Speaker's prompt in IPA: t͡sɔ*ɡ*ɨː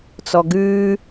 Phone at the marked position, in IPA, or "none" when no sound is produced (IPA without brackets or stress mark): ɡ